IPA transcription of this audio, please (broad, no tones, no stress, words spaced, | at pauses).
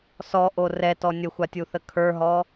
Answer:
sɔʔo rɛtɔ nʲəxʷatʲuθə kʰə˞ɦɔ